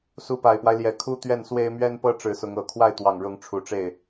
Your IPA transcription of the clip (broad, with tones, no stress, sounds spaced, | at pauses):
s u˧˥ p a˨˩ ɪ̯ p w a˦ ɪ̯ l j ɛ˨˩ kʰ u˥ t̪ ɥ ɛ˥˩ n s w e˥ ɪ̯ m ɥ ɛ˥ n p ɤ˥ ʈ͡ʂ ɻ̩˧˥ s ʊ˧˥ ŋ ɤ˨˩ kʰ w a˥˩ ɪ̯ t̪ w ɑ˨˩ ŋ ɻ ʊ˧˥ ŋ ʈ͡ʂʰ u˨˩ ʈ͡ʂ e˥˩ ɪ̯